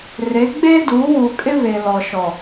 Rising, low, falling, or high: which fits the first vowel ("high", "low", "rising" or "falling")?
rising